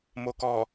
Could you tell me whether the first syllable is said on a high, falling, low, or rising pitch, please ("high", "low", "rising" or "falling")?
low